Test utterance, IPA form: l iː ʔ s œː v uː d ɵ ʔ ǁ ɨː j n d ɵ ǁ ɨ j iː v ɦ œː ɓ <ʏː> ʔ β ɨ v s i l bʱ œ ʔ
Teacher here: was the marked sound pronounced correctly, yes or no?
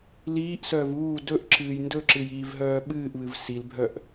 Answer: no